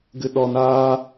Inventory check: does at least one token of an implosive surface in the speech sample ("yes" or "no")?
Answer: yes